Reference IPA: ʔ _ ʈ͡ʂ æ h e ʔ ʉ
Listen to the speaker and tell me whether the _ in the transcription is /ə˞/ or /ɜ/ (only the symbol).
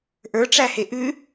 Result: ə˞